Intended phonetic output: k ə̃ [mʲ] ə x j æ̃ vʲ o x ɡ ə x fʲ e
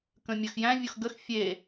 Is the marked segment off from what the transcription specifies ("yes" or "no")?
no